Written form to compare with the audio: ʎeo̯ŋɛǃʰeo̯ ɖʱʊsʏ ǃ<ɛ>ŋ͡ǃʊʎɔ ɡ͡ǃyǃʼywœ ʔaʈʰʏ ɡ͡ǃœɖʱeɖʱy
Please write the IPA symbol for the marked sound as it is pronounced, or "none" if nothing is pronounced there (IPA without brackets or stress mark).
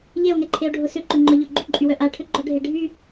ʏ